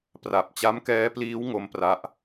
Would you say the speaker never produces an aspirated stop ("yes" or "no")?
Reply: yes